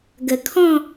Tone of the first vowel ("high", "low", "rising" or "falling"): low